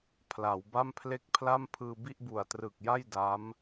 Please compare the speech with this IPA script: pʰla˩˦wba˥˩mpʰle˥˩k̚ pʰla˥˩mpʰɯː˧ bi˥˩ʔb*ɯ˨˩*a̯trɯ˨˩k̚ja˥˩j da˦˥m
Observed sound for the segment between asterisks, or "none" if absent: u˨˩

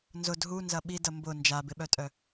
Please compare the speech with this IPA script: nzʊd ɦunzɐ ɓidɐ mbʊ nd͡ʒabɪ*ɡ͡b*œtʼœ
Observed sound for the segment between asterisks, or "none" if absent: ɓ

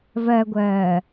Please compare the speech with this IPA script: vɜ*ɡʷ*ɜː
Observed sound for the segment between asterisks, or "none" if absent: ɡʷ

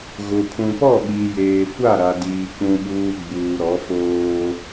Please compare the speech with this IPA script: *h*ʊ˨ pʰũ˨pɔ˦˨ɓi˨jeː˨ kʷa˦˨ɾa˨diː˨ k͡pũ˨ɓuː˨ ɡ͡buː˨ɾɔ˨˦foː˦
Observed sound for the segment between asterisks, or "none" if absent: ɣ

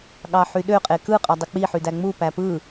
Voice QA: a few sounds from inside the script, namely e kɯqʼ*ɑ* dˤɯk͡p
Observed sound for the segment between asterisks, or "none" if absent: ɑ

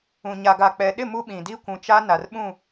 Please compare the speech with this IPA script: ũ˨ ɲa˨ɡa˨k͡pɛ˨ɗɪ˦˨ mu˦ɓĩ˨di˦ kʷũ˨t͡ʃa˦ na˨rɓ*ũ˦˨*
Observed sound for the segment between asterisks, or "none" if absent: ũ˦˨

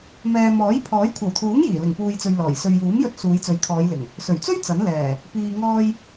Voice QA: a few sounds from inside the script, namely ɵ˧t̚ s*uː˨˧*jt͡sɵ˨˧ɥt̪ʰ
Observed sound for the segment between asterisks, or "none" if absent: uː˨˧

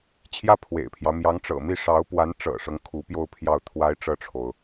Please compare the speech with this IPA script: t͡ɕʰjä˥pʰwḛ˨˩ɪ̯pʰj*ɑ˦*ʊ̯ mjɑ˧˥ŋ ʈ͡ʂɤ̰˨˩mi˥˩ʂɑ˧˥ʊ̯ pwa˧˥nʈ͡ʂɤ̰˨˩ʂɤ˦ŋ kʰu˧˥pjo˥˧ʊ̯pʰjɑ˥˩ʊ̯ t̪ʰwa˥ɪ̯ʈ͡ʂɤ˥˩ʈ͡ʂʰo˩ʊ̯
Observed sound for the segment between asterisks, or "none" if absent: ɑ˦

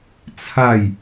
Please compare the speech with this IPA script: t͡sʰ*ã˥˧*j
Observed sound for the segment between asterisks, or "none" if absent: a˥˧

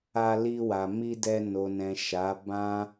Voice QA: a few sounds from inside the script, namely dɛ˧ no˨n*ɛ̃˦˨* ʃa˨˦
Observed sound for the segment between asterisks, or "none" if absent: ɛ̃˨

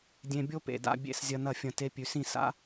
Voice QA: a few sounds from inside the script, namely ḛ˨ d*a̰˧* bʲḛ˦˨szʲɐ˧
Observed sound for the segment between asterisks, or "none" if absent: a̰˧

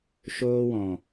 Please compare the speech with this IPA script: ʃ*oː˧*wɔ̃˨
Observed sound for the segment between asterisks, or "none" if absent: oː˧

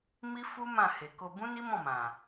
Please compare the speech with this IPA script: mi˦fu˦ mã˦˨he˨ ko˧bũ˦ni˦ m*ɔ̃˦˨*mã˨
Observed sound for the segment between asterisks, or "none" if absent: ɔ̃˦˨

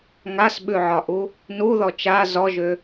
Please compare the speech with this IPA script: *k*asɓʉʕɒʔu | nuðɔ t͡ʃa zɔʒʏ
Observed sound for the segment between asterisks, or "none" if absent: ŋ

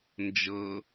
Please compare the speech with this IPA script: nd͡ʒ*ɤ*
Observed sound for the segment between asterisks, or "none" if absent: ɤ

